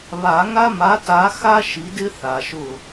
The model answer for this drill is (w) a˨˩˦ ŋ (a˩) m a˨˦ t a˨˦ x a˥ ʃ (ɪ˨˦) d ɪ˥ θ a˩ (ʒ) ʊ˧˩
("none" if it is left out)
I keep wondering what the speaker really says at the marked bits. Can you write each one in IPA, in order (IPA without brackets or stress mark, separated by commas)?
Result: β, a˥, i˨˦, ʃ